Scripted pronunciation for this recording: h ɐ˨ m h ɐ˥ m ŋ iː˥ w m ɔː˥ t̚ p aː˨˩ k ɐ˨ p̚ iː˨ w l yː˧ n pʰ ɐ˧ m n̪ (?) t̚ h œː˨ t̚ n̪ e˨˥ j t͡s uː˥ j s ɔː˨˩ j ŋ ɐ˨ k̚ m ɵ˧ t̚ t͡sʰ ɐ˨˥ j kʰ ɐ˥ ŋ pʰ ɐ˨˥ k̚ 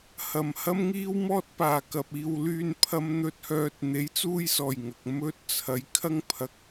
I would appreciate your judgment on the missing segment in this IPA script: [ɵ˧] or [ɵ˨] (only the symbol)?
ɵ˨